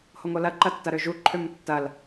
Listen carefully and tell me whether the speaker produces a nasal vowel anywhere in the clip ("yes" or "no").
no